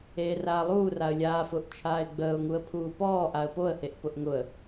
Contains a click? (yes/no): no